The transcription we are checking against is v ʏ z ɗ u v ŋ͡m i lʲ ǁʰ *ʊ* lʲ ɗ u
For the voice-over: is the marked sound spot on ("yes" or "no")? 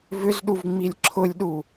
yes